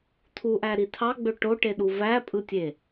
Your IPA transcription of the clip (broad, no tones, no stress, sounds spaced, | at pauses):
tʰ u ʔ æ ɾ i tʰ ɑ ɡ͡b ø ʈ o ʈ e ɗ u v æ pʼ ɯ tʲ e